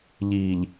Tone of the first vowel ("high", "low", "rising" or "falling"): low